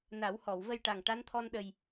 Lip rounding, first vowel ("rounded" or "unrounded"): unrounded